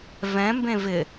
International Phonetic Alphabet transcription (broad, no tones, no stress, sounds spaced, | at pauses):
v ɛ̃ m b ẽ v ɪ